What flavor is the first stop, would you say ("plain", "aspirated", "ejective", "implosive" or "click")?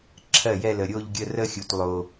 click